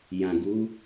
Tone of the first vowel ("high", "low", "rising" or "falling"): low